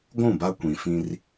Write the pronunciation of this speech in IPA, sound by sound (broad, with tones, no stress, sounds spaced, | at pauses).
ɡʷ ũ˦˨ b a˦ kʷ ĩ˨ f ĩ˦ r